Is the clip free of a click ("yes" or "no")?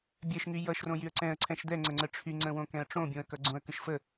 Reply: no